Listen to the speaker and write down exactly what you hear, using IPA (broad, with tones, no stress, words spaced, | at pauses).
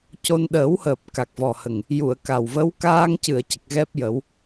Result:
co˧n ɗəː˨˩˦whəː˨˩p̚ ka˨˩k̚vɔ˨˩hə˨˩ŋ | ju˨˩˨ə̯ ka˨˩wvə˧˥w kaː˧ŋcɨ˨˩˨ə̯ cə˨˩k̚ɣɛ˦˥p̚jə˨˩˦w